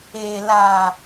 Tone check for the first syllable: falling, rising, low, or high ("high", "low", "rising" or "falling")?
low